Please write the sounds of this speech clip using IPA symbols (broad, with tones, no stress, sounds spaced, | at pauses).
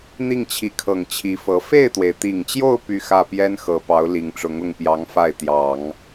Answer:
n̪ i˥˩ ŋ t͡ɕʰ i˧˥ kʰ ɤ˨˩ ŋ t͡ɕʰ i˧˥ f ɤ˧˥ f e˥˩ ɪ̯ t̪ w e˩ ɪ̯ t̪ i˨˩ ŋ t͡ɕ j o˥˧ ʊ̯ p y˥˧ x ä˥˩ p j ɛ˥ n x ɤ˧˥ p ɑ˧˥ ʊ̯ l i˨˩ ŋ ʈ͡ʂ ʊ˧˥ ŋ ʊ˥˩ ŋ p j ɑ˧˥ ŋ f a˥˩ ɪ̯ t̪ j ɑ˨˩˦ ŋ